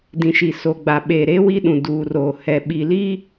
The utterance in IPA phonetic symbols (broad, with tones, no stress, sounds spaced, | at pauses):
d ĩ˨ ʃ i˨ s o˨ ɡ͡b a˨ ɓ eː˨ ɾ e˦ w i˦ ɗ ũ˨ d uː˨ r oː˨ h ɛ˨ ɓ i˨ l i˦